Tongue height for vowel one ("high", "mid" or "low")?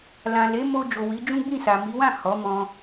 low